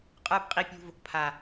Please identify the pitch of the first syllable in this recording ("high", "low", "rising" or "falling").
high